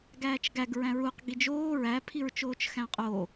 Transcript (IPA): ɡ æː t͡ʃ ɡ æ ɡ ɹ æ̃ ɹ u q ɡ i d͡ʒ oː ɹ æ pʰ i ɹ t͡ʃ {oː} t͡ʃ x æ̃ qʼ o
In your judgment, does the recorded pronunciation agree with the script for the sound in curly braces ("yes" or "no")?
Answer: yes